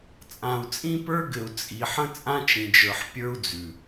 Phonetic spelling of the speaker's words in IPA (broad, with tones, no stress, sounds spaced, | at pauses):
t͡sʼ ã˨ u̯ t͡sʼ ĩ˦ p ə˞˦ ɡ ɘ˨ u̯ t͡sʼ i˨ ħ ə̃˦ t͡sʼ ã˦ t͡ʃ ĩ˨ d͡ʒ ə˞˨ ħ pʲ ə˞˦ u̯ d͡z ʉ˨